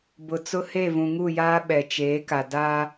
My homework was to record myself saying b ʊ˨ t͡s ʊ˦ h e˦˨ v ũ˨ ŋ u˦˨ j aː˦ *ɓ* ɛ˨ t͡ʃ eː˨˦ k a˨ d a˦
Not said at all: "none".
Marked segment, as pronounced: ɓ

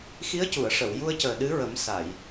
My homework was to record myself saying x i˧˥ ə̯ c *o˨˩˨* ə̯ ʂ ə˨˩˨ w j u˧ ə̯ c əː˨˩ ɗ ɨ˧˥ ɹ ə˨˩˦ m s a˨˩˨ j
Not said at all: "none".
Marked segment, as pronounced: u˨˩˨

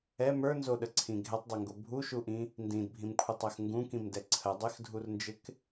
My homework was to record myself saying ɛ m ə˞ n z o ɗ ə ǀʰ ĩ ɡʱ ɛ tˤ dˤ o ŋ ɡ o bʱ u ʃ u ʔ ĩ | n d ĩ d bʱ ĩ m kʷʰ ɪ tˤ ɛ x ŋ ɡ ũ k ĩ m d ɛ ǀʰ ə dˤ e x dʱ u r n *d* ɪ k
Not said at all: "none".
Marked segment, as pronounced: d͡ʒ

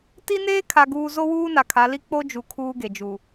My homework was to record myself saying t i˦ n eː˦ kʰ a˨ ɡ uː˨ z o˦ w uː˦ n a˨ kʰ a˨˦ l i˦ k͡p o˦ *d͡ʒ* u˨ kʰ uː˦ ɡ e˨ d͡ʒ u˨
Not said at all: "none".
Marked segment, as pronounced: d͡ʒ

